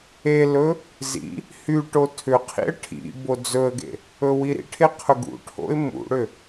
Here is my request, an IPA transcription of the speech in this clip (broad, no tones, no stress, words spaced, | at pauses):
elɵ | zḭ | hy ʈotʰʏqʰḭə̯ ʈʰḭ bod͡zɵə̯ɡḛ | ɵwiɾḭʈʰe qʰɵɡṵʈʰo̰ɪ̯ mṵɽʏ